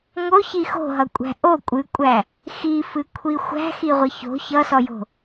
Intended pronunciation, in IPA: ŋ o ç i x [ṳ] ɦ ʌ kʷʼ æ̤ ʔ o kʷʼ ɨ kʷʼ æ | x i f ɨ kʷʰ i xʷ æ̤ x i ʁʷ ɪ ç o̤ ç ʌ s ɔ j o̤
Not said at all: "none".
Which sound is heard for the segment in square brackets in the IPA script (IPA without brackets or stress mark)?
o̤